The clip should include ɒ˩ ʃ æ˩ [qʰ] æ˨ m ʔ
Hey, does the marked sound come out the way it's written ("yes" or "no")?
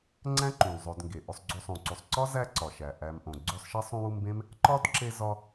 no